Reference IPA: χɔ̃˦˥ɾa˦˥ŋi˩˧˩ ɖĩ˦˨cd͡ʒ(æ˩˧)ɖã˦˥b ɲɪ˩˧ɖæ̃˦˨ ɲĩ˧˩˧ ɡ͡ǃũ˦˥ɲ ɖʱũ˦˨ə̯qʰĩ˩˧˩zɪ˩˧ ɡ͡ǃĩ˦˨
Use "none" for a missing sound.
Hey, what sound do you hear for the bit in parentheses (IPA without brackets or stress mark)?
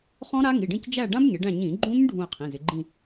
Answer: æ˦˨